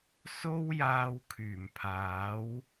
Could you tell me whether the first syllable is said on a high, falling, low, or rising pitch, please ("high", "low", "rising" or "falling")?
high